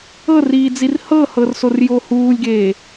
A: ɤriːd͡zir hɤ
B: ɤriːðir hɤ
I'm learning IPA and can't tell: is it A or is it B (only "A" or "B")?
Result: A